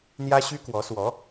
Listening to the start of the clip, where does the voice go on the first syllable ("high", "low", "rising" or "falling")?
high